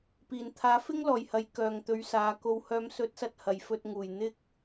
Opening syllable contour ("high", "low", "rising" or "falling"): low